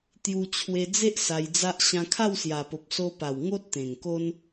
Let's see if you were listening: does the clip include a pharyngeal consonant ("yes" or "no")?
no